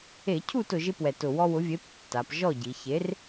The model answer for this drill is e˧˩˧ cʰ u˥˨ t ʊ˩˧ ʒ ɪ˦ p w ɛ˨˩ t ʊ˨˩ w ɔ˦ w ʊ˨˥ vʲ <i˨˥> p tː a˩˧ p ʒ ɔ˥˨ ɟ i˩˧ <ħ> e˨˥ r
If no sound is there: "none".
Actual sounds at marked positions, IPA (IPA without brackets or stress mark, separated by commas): e˨˥, ç